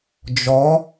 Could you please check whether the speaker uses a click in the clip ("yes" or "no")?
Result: no